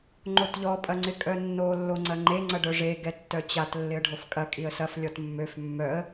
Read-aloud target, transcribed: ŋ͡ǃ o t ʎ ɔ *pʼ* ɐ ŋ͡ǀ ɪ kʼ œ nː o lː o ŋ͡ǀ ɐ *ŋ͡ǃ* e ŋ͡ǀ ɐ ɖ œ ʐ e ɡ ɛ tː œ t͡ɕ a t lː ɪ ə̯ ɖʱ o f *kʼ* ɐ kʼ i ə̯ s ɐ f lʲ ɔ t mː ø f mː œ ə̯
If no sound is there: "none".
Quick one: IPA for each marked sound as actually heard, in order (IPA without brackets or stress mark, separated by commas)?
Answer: pʼ, ŋ͡ǃ, kʼ